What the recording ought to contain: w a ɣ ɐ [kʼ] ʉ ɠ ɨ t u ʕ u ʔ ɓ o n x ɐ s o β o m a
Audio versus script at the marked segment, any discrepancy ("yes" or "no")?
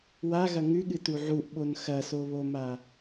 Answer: yes